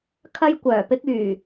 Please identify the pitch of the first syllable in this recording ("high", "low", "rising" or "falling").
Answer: high